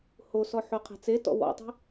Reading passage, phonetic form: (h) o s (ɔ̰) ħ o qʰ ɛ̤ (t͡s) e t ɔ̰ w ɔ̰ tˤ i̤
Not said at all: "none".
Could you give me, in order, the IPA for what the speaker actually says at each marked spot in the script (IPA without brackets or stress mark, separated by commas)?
h, ɔ, t͡s